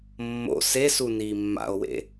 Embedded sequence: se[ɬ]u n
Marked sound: incorrect: s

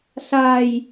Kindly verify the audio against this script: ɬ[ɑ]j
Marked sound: incorrect: a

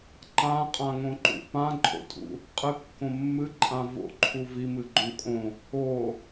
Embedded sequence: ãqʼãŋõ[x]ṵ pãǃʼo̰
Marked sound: incorrect: ǃ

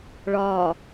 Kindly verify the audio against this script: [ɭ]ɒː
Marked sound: correct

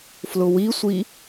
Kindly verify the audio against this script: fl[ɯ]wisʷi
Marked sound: incorrect: ʊ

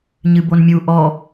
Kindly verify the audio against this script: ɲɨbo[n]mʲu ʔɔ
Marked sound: correct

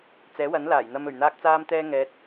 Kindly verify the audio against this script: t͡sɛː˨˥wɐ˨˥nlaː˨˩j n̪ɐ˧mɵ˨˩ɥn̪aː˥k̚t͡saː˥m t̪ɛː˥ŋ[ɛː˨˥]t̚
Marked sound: correct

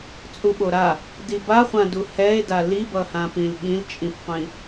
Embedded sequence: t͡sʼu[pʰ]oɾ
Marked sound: incorrect: ɓ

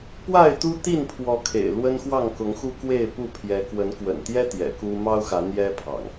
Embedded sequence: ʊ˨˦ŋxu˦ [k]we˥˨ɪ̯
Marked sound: correct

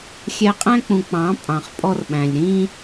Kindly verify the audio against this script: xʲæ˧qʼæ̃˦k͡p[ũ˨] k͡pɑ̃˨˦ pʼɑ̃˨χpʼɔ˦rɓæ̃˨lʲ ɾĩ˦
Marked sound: correct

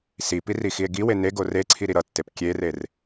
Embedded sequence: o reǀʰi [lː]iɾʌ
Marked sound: incorrect: ɾ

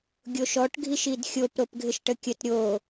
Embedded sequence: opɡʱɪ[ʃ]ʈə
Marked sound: correct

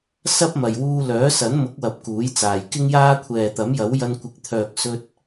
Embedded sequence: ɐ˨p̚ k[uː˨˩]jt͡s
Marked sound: incorrect: uː˨˥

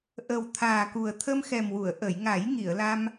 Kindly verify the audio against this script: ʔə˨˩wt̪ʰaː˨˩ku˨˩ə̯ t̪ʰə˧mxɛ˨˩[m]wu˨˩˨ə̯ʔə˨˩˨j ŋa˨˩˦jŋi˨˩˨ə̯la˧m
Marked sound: correct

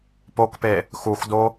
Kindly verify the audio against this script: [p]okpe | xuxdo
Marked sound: correct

